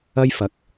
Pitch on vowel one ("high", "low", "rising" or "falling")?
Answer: high